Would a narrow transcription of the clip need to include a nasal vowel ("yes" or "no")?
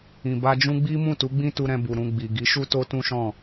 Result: yes